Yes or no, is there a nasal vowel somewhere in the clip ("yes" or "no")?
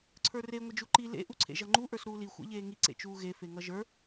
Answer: no